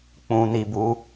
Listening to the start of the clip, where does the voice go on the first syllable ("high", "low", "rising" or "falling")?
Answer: low